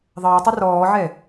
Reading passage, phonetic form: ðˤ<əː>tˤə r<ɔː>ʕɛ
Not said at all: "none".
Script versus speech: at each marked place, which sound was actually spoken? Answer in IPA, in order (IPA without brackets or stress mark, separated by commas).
əː, ɔː